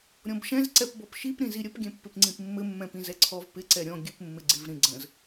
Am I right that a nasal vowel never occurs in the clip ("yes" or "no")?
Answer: no